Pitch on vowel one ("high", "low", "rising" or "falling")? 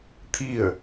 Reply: falling